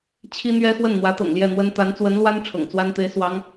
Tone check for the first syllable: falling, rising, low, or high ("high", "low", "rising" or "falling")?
high